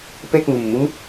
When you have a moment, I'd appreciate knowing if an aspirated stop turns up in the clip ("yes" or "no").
no